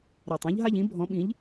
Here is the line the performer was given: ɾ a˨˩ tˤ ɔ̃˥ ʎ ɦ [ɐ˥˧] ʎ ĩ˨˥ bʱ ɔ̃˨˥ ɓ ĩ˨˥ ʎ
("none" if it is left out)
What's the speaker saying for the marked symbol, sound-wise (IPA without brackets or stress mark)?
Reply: a˥˧